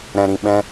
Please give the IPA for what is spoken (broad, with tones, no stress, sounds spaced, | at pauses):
ɾ ɛ̃˨ ɾ ĩ˨ ɓ ɛ̃˧